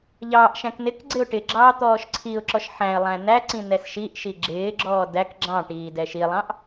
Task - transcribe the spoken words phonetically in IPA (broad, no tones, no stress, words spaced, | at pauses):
ʎɑːʔʃæ̃k nɪk ɡ͡ǀɪʊ̯ʈɪɡ͡ǁɑː t̪ɔːʃǀʰiʊ̯ǁɔʃ ħæ̃ɪ̯lˠæ̃ næǀĩ nɛsʃiʔʃi ɡ͡ǁɪːɡ͡ǁɔː dæk ɡ͡ǁɑ̃ʈiː dɛʃilˠɑ̃ʔ